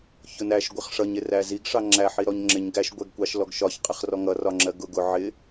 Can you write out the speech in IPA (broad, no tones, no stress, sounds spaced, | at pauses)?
ç ʊ n æ ʃ ɡʷ ɪ χ ʂ ʌ ɲ ɪ r æ z i ɡ ʂ ɑ ŋ͡ǁ æ ħ i ɾ ɔ ɲ ŋ͡ǁ ɪ ɲ ɡ æ ʃ ɡʷ ɛ ɡ kʷ ɑ ʃ l ɔ ɡ ʃ ɒ ç qʼ ɛ χ r ɔ ŋ ʌ r ɒ ŋ͡ǁ ɜ ɡ ʊ ɡ ʊ ʕ ɪ